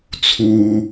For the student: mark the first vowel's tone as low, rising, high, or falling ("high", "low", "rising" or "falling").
low